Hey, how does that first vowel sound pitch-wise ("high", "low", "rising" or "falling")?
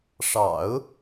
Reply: low